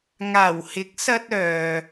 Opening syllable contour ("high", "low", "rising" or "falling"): low